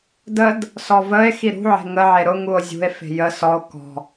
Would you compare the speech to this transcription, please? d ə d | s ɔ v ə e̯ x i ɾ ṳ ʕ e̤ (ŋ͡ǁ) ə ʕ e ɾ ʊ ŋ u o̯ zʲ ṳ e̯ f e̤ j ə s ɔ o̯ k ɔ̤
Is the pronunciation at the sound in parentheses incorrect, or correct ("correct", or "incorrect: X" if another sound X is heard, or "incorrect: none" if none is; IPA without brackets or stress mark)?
incorrect: ŋ